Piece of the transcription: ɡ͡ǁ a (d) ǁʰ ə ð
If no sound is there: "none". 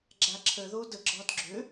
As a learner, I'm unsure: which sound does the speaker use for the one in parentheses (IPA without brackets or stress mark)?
none